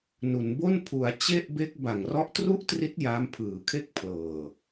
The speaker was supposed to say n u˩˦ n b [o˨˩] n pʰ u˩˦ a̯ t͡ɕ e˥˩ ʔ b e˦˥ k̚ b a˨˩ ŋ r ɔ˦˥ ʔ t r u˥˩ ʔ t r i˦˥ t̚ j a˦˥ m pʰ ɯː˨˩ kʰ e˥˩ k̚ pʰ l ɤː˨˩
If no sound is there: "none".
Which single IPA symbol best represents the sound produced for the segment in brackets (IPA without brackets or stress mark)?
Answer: o˥˩